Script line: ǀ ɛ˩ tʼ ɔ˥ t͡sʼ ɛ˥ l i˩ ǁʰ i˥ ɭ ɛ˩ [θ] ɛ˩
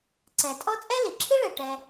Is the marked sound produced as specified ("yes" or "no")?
no